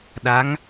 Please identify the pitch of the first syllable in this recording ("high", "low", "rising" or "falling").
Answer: rising